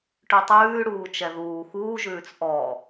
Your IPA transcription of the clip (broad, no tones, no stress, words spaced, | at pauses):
ʈʉtˤʉːɽuː t͡ʃɛðuː xuːʒʉːt͡s ʔɔ